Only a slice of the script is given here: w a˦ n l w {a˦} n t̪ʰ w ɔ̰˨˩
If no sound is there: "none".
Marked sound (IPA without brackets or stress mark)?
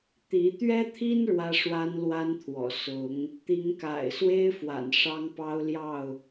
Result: a˦